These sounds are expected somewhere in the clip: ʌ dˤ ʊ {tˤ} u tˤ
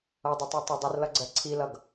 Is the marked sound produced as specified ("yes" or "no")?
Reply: yes